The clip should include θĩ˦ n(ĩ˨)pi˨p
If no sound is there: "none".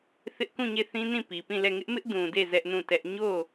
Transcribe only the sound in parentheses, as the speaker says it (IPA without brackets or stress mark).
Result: ĩ˦˨